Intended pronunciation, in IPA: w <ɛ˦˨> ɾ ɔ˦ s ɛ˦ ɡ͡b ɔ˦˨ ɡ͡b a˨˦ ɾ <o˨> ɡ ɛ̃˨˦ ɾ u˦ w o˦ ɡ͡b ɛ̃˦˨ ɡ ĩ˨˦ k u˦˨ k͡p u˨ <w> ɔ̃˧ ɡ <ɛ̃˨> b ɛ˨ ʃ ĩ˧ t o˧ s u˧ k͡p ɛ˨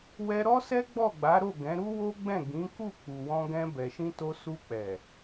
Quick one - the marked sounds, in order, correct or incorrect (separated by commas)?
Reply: incorrect, incorrect, correct, incorrect